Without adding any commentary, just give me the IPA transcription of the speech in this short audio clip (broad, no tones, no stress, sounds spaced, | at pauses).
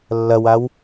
lː ɐ w a w